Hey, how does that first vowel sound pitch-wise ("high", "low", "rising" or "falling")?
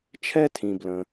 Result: high